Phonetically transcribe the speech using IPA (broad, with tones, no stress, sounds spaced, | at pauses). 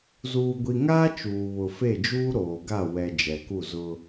z uː˨ ɡʷ i˨ ŋ aː˦ t͡ʃ uː˨ β ʊ˨ f e˦˨ d͡ʒ uː˦ ɾ oː˨ ɡ a˦˨ w ɛ˨ d͡ʒ ɛ˨ k u˦˨ z ʊ˦